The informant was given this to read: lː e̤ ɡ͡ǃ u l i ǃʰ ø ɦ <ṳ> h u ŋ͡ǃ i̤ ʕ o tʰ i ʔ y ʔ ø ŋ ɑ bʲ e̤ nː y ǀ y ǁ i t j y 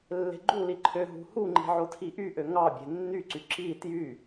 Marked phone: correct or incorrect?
correct